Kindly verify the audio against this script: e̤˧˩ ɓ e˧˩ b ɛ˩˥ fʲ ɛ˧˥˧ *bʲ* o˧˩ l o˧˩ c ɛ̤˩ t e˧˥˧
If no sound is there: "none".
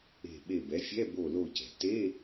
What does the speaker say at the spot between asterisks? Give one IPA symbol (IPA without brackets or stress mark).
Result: b